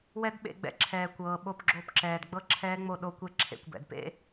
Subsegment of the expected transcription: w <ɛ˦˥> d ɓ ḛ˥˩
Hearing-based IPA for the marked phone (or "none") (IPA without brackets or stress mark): ɛ˦˥